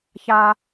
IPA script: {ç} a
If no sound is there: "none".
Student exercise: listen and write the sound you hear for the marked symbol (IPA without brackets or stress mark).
ç